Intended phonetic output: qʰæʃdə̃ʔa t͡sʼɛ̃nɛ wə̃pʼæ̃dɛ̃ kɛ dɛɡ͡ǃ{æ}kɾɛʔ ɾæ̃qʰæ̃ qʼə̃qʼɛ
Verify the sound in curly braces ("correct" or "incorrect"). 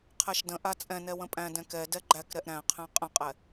correct